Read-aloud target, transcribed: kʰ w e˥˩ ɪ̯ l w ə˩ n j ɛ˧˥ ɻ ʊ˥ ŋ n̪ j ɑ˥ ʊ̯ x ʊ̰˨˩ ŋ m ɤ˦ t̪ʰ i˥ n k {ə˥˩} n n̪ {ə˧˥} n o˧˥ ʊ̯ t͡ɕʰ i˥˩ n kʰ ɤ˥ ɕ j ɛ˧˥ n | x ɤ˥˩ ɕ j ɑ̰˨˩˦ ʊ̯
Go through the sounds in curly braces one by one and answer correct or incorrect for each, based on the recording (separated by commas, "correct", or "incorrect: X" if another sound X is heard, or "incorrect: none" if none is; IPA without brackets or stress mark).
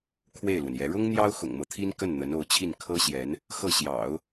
correct, correct